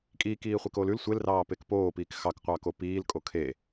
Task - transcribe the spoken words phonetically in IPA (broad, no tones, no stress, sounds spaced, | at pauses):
kʼ iː k iː χʷ i k oː l ʉ l sʷ e l r ɑː p e k p oː p iː k x ɑ k qʷ ɑː k o p iː l kʼ o kʰ e